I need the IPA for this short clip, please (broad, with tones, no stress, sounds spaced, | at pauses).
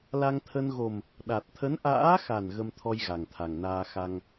l a˧ ŋ t̪ʰ ə˧ n ɣ o˨˩ m | ɗ a˨˩ t̚ t̪ʰ ə˨˦ n ʔ a̰ː˧˥ x a˨˩ n ɣ ə˧ m t̪ʰ ɔ˧ j ɣ a˨˩ ŋ t̪ʰ a˨˩ ŋ n aː˧ x a˧ ŋ